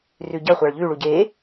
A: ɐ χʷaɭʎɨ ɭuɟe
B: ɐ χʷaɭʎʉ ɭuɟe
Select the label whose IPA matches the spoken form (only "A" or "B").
B